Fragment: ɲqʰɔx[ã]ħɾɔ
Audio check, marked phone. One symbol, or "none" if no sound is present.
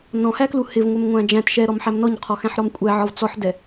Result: æ̃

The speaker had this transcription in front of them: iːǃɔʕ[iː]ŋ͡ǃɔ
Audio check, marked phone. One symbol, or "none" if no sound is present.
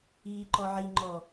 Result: i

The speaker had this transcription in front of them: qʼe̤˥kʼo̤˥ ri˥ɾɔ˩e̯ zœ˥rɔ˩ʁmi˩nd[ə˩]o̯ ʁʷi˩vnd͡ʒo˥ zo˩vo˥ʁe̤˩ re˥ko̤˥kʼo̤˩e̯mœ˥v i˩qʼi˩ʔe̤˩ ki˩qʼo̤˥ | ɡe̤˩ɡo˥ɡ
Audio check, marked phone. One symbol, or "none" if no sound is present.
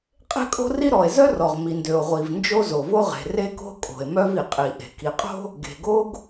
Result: ø˩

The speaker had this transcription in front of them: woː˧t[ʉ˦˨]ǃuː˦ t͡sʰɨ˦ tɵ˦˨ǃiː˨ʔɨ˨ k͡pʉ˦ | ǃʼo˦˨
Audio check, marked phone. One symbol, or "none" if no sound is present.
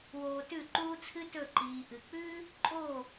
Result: ʉ˦˨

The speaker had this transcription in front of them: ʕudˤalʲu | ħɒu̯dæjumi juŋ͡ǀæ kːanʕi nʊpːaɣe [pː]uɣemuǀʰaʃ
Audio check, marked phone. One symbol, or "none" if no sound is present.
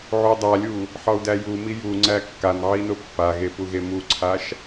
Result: p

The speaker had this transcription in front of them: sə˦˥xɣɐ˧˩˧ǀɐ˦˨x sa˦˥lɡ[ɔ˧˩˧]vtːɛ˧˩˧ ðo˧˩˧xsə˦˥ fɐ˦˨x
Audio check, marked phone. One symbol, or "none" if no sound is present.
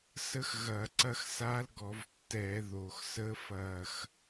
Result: ɔ˧˩˧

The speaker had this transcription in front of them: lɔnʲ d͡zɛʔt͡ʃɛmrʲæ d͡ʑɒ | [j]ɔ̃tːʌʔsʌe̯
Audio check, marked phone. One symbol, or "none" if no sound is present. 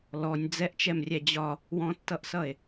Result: w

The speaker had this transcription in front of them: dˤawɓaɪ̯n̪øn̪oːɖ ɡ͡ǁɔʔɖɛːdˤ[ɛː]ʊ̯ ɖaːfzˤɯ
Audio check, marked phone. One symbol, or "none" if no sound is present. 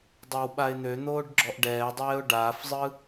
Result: ɛː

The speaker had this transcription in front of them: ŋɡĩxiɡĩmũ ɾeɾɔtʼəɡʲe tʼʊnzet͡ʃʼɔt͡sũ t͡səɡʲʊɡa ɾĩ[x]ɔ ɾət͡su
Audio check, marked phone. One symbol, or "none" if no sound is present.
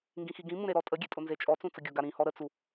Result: h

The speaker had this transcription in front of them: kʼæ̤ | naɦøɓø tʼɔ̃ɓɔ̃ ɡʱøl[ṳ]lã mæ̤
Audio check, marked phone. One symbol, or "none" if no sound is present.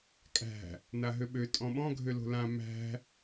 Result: o̤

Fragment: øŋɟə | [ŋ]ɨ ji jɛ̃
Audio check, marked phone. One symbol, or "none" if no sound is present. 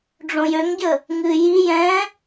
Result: ŋ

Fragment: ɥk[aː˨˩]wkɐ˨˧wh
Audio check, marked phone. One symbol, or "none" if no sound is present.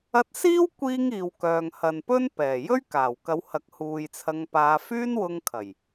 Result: aː˨˩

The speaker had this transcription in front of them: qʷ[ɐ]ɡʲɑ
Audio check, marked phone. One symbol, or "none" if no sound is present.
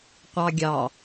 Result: ɑ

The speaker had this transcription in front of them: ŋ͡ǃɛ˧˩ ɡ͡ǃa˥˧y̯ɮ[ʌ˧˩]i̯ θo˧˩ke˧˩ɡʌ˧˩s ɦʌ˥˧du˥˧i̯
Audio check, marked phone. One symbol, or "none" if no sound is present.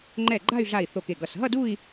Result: a˧˩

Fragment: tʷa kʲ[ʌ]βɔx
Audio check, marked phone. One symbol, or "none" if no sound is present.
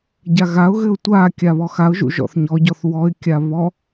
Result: a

